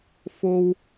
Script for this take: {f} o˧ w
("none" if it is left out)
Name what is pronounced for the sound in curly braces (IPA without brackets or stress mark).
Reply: f